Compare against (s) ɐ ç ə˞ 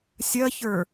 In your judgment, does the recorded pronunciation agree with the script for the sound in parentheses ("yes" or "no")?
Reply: no